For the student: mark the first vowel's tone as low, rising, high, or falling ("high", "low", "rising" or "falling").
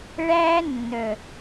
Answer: high